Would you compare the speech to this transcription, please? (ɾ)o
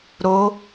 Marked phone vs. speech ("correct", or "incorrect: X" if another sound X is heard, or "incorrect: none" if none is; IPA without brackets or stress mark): correct